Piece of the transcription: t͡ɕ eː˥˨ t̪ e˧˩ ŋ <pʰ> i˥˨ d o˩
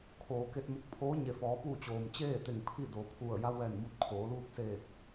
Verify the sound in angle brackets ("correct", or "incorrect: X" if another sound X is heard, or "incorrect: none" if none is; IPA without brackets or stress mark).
correct